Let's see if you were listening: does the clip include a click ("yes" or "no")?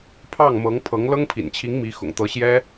no